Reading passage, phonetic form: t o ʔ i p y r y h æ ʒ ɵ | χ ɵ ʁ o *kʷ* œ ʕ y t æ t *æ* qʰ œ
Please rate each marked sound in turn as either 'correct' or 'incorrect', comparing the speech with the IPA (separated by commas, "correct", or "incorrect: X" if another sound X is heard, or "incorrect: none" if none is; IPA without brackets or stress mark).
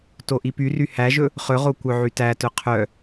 correct, incorrect: œ